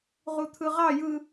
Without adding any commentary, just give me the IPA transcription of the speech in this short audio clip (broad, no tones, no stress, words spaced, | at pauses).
ʁut̪ʰɯʁɑ jɯ